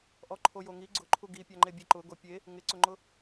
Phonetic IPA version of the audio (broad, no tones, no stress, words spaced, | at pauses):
ʔɔǃʰojoŋi ɡ͡ǀʊǃʰu ɡipʲaŋ͡ǃe bʲeǃʊɡo pʲe | ŋɪǀʊŋ͡ǃʊ